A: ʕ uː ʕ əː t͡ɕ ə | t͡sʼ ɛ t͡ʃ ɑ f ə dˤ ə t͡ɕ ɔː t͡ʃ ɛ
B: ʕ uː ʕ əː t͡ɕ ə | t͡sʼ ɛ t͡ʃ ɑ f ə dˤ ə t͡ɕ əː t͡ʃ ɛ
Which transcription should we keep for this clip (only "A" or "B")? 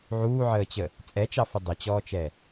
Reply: A